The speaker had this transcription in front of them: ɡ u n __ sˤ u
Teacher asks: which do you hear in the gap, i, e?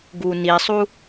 i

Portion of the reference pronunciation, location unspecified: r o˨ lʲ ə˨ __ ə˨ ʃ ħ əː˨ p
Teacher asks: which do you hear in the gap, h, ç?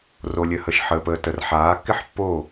h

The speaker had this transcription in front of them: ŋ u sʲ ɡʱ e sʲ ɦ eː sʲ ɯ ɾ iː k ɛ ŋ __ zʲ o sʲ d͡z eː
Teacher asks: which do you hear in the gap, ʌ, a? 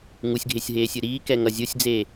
ʌ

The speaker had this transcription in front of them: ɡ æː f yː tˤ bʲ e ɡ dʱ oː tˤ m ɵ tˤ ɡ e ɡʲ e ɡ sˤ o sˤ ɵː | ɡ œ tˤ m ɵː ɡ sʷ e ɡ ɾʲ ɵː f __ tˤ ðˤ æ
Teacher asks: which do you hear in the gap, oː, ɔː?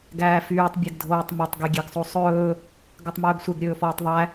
ɔː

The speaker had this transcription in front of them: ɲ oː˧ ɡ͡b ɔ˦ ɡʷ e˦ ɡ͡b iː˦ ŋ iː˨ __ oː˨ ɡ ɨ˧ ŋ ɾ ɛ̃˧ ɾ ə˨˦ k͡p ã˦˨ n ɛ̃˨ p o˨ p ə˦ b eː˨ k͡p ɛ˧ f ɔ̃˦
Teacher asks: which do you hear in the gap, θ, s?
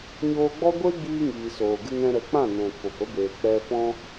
s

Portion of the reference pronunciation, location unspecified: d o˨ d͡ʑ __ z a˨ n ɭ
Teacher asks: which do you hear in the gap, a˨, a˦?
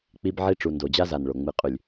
a˦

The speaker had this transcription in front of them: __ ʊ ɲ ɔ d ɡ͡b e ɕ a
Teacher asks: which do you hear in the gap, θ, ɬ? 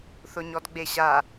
θ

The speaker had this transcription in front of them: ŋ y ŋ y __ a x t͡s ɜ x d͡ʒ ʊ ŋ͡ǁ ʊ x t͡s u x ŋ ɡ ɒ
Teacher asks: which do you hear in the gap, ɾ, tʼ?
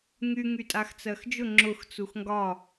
tʼ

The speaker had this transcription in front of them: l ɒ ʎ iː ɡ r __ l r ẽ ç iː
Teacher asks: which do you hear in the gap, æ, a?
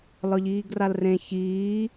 a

